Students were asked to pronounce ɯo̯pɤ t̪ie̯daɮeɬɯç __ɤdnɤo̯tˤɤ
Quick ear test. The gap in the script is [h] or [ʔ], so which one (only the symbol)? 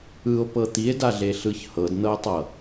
h